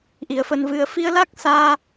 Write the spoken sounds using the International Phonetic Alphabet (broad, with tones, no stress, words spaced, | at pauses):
ʔi˨˩ə̯fə˧nvɨ˧ə̯ fi˧ə̯la˦˥k̚saː˧